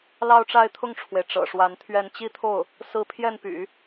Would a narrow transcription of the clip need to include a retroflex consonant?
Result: yes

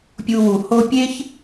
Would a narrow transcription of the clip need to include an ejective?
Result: no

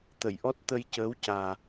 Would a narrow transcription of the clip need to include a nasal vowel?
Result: no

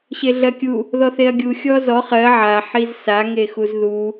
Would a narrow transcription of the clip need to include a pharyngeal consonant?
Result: yes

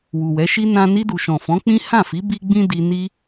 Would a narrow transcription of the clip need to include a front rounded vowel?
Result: no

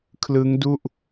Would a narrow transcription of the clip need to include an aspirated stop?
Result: yes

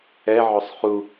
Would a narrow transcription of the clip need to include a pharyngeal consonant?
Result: yes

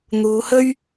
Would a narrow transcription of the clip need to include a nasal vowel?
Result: no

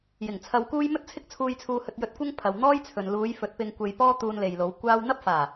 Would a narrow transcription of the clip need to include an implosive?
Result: no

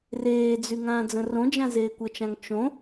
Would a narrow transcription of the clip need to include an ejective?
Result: no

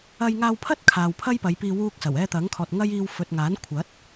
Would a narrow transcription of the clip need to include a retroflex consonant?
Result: no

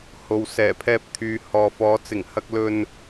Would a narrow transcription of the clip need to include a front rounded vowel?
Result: yes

